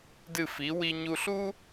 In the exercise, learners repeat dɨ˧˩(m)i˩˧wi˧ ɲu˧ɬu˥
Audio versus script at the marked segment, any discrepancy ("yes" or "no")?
yes